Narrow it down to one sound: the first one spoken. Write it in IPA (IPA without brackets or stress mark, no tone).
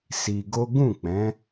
s